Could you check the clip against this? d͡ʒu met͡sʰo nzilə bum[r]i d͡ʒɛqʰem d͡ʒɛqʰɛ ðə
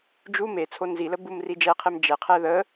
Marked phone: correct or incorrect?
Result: correct